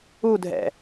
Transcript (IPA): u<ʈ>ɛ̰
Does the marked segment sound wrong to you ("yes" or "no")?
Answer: yes